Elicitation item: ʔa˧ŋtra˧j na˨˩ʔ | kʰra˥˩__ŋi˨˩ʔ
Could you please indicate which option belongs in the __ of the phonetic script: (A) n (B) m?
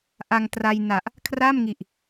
B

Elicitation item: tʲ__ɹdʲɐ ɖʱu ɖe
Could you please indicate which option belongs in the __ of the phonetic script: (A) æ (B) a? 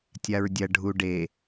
B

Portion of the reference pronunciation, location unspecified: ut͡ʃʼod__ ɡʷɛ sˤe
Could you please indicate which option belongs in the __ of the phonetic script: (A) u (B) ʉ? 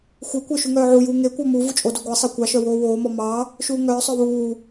A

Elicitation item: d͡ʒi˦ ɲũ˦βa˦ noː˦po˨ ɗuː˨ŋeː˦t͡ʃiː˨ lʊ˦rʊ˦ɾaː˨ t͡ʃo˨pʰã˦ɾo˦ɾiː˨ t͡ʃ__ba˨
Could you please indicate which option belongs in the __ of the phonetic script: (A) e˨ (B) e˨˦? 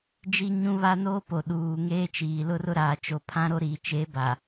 B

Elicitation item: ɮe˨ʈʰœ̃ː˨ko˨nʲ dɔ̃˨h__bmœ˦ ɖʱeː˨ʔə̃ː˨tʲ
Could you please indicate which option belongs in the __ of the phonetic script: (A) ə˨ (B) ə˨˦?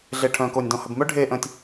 A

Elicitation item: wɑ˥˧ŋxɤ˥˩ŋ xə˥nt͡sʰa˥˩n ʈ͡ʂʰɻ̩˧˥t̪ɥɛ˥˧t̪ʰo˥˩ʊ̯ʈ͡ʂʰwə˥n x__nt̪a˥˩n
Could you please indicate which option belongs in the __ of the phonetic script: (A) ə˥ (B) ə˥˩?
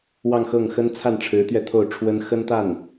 A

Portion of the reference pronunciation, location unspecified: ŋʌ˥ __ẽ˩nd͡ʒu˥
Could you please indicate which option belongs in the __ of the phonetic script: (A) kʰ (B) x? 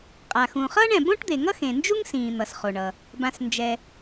B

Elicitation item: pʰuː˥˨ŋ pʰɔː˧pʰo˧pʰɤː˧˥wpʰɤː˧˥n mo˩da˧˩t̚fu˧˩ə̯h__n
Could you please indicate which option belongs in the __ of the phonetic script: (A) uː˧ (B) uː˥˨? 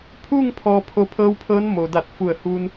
A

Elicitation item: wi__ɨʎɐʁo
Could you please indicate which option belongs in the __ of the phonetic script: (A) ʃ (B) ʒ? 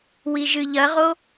B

